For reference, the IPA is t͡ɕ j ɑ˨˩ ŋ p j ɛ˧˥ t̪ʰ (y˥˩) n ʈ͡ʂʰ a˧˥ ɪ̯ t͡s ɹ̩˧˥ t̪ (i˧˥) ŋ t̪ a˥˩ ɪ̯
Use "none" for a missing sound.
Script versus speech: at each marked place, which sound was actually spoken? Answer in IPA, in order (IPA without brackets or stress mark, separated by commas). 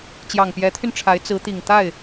y˧, i˨˩